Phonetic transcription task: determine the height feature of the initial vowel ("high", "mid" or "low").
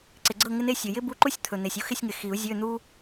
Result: high